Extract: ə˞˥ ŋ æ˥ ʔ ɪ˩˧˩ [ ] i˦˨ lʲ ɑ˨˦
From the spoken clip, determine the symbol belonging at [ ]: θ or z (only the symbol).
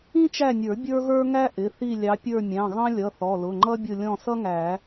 θ